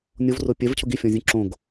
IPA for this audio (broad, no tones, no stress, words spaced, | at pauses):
nʲovro pʲɛvcʰʊ ɡifʲɔ̃zʲũ ǁõɡ